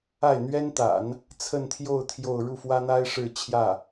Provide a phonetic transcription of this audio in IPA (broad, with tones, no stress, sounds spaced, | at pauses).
a˥˩ ɪ̯ n̪ ɥ ɛ˥ n t̪ a̰˨˩˦ n | t͡sʰ ə˥˧ n t̪ʰ j o˥˧ ʊ̯ t̪ʰ j o˥˧ ʊ̯ ɻ u˥˩ f w ä˥ n̪ a˥ ɪ̯ ʂ ɻ̩˥˧ t͡ɕʰ j ä˥˩